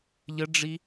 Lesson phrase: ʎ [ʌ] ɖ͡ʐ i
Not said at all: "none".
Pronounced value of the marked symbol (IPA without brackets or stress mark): ə